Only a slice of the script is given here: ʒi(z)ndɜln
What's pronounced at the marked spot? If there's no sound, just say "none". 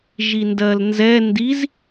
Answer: none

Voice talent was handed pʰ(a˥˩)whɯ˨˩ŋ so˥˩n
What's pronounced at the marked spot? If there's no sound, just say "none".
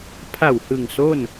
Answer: a˨˩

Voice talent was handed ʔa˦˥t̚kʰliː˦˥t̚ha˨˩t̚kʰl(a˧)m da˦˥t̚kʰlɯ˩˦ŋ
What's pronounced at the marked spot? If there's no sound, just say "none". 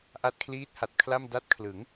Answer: a˥˩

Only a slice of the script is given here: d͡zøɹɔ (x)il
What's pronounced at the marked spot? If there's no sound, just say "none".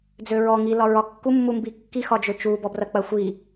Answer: ŋ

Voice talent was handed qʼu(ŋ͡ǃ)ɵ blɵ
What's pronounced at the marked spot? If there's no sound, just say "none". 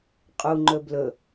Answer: ŋ͡ǃ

